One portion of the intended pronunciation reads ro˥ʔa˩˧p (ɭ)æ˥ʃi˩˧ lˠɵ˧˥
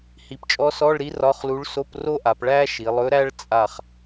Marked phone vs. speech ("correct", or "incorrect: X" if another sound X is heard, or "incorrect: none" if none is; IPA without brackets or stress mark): correct